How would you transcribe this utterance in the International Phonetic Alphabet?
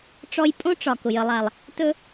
ʈ͡ʂ ɔ˦ j pʼ õ˦ ʈ͡ʂ ɒ˩ k ʊ˩ j ə˨ lˠ a˩ lˠ | t ɵ˥

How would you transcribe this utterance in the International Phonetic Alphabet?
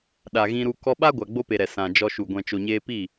ɗ a˨ ɣ ĩ˧ ɾ u˧ k ɔ˧ ɓ a˦ ɡʷ a˨ ɡ͡b o˧ p e˨ ɾ ɛ˨ s ã˨ d͡ʒ ɔ˧ ʃ u˨ ɡʷ ɛ̃˨ t͡ʃ o˨ ɲ eː˧ p i˦˨

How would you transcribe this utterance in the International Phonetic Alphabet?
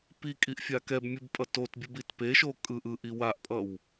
p i kʼ i ʔ fʲ a k ɛ b mʲ ɯ b pʼ ʌ t o t bʲ u b i t p e ʃ o kʼ ɯ ʔ ɯ ʔ i w a ʔ pʼ ʌ w

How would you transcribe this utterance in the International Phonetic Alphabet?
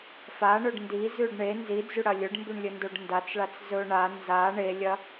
f a ɳ ɵ ɖ n d i z ʉ ɖ ɳ e n z i d͡z ʉ ɽ ɐ lʲ ɵ ɖ m b ʉ ɳ lʲ ɵ n d o ɖ n d a t͡s ɭ a t͡s z ɵ ɳ a n z a ɳ e lʲ ɐ

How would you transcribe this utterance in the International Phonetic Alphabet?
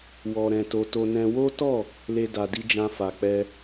w ɔ˧ ɾ ɛ̃˧ t o˧ t o˧ n ɛ̃˧ w o˦ t ɔ˦˨ | l e˦ d a˧ d i˦ d͡ʒ ã˦ f a˧ k͡p ɛ˦

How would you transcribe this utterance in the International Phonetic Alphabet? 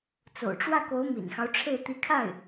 t͡s o̰˨˩ ʊ̯ ʈ͡ʂ w ä˥˩ k o˧˥ ʊ̯ m ḭ˨˩ n x ɑ˦ ʊ̯ ʈ͡ʂʰ e˥˩ ɪ̯ t̪ i˧˥ kʰ a˥˩ ɪ̯

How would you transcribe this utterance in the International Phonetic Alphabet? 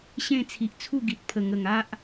ɕ ẽ˥˧ t͡sʰ i˨ ʔ t͡sʰ u˥˧ ɡ i˨ t̚ pʰ ə˨˩ ŋ ə˨˩ ŋ a˦ ʔ

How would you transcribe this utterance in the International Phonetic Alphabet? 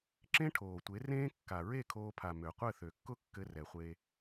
ǁ ẽ˦ ʈʰ oː˨ tʷ e˨˦ r ẽː˦ kː a˨ ɹ e˦˨ kʰ oː˧ pʰ a˨ m ø˨ qʷ ɘ˦˨ θ ø˨ kː ʊ˦ kː ɘ˧ r ɛ˨ χʷ e˧

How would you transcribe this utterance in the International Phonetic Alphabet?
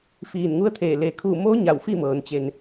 f iː˧˩ n ŋ u˧˥ ə̯ t̪ʰ eː˧˩ l e˩ kʰ u˧˩ m o˧˥ ɲ a˧˩ w f i˥˨ m ɤː˩˧ n t͡ɕ e˧ n

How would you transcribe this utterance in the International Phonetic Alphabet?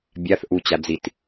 bʲ a θ ʔ u t͡ɕ a d͡z i t

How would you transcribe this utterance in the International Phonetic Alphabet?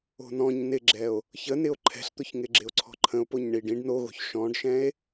o̤ n ɔ̃ ɲ n ɪ ɡ͡ǁ ɛ o̯ | ç ə n ɪ o̯ ǃʰ ɛ̤ ɬ t̪ ʊ ç ŋ ɪ ɡ͡ǁ ɪ o̯ ǀʰ ɔ̤ ǃʰ ə̃ o̯ p o ɲ ɳ i ɖ ĩ ɖ n o ɣ o̤ ç ʃ ɔ̃ ɖ ʃ ɛ̃ e̯

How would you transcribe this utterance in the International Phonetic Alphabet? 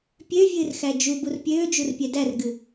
pʲ ø vʲ ɨː r x æ d͡ʒ u b u r pʲ øː d͡ʒ u r pʲ ɛ d æ r ɡ ɨ

